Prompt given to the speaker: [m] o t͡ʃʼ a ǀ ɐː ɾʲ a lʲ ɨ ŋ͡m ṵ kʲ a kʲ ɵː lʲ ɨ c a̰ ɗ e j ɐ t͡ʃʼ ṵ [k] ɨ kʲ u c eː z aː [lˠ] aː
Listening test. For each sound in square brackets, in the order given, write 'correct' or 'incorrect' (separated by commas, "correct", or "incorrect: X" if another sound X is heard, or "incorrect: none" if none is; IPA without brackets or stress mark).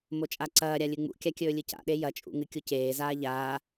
correct, incorrect: ŋ, incorrect: ʎ